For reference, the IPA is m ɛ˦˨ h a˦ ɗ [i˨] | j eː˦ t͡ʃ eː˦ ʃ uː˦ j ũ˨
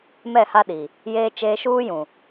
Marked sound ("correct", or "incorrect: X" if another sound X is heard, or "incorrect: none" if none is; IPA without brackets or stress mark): correct